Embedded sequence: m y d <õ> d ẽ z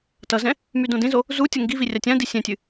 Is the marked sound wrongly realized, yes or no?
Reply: no